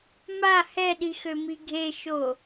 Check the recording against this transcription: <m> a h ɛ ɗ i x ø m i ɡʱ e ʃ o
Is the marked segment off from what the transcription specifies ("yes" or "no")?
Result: no